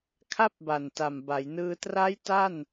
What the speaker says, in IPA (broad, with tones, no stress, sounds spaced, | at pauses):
kʰ a˥˩ p̚ b a˨˩ n t a˨˩ m b a˩˦ j n ɯː˧ t r a˦˥ j t a˥˩ n